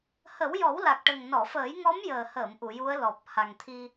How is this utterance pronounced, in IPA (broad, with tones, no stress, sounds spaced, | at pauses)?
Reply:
h ə˨˩˦ w j ɔ˨˩˦ w l a˨˩ k̚ ʈ ə˨˩ ŋ n ɔ˨˩˨ f əː˨˩˦ j ŋ ɔ˧˥ m j əː˨˩ h əː˨˩˨ m ʔ u˨˩˨ j u˧˥ ə̯ l ɔ˨˩ p̚ h a˨˩ ŋ t̪ʰ i˧